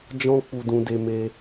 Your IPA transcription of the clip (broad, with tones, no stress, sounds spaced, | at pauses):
d͡ʒ ɔ̃˦ k͡p u˧ d ũ˧ d e˧ m e˧